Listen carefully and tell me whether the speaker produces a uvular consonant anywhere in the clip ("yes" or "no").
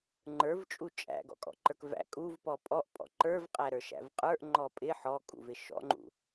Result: yes